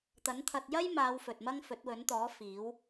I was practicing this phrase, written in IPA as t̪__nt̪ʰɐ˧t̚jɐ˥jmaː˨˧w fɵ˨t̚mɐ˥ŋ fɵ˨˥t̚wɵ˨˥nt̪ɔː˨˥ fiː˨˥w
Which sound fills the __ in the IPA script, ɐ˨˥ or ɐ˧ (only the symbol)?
ɐ˨˥